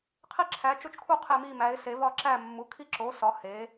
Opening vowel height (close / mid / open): close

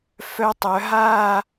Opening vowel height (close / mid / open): mid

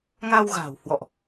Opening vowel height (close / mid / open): open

